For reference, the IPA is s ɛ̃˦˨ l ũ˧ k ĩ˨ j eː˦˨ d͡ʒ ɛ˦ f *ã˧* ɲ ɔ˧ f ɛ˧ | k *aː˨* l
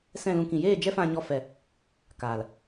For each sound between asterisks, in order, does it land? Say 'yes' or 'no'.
yes, yes

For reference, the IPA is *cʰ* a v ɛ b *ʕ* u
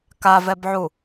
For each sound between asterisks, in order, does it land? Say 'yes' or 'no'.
no, yes

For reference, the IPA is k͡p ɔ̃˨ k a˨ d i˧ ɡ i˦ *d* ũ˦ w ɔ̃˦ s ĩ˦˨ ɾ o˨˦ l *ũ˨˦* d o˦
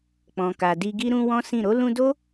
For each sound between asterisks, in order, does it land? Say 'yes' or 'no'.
no, no

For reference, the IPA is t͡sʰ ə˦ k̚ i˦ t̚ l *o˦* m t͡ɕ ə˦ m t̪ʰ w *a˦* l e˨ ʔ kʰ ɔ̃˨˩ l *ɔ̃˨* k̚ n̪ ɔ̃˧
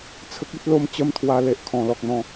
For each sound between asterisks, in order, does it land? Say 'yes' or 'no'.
yes, no, no

